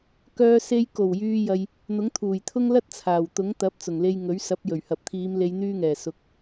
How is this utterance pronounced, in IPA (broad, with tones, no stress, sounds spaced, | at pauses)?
k œː˧ s e˧ j k o˨˩ w j yː˨ j ɐ˨ j | n̪ ʊ˨˥ ŋ t̪ʰ uː˨˩ j t̪ʰ ʊ˥ ŋ l ɐ˥ t̚ t͡sʰ aː˨˩ w t̪ ʊ˨˥ ŋ t̪ ɐ˨˥ p̚ t͡s ʊ˨˩ ŋ l e˧ j ŋ ɵ˨˥ ɥ s ɐ˨˥ p̚ j ɵ˨˩ ɥ h ɐ˨ p̚ t̪ʰ iː˨˧ m l e˨˧ j n̪ yː˧ ŋ ɛː˨˩ s ʊ˨ k̚